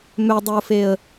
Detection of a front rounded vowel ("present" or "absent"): present